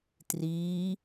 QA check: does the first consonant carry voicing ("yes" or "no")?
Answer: no